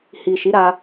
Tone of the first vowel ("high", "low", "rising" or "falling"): low